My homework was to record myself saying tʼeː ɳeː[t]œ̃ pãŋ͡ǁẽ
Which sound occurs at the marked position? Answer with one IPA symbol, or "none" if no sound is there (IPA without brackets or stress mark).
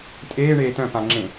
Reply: t